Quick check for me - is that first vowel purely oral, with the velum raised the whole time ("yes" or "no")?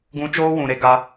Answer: no